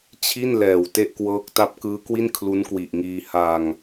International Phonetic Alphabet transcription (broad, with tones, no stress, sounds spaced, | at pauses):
t͡ɕʰ i˥˩ n l ɛː˨˩ w t e˥˩ ʔ k w ɤː˦˥ k̚ t a˦˥ p̚ k ɯː˦˥ k w i˥˩ n kʰ l u˦˥ n k w i˨˩ ʔ ŋ iː˧ h a˧ ŋ